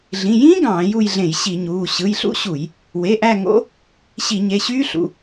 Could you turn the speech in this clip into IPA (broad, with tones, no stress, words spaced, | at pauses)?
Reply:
ɮĩ˩˧˩ jĩː˦˥ ɡɑ̃ː˧˩˧ju˦˨jɮẽ˧˩˧j ɕi˧˩˧ɲuː˩˧˩ ɕɯ˩˧˩jɬṵ˦˥ɕu˧˩˧j | we˩˧˩ʔæ˦˨ ŋo̰˦˥ | ɕi˧˩˧ɲe˩˧˩ɕyː˦˥ɬṵ˩˧˩